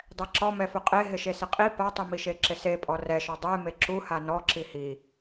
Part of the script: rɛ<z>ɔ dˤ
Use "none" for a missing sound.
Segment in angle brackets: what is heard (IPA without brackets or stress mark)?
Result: ʃ